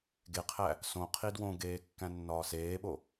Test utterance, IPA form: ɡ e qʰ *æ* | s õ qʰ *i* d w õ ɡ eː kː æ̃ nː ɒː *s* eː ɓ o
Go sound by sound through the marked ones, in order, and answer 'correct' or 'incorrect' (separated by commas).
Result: correct, correct, correct